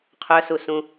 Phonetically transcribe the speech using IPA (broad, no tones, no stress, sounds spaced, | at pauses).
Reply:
qʰ œ s u s ũ